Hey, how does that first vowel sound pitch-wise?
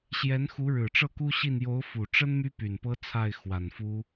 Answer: rising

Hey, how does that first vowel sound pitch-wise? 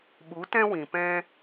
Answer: rising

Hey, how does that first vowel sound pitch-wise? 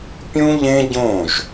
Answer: high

